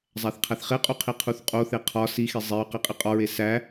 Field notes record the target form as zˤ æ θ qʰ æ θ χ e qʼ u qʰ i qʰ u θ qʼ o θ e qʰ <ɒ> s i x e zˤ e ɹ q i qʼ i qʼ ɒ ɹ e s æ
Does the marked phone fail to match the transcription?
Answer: no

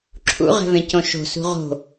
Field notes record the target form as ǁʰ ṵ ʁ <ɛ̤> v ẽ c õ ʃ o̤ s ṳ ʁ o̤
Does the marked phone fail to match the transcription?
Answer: no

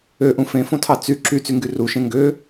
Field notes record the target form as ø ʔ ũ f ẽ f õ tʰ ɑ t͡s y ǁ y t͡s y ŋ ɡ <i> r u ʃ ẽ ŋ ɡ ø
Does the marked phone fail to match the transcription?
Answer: yes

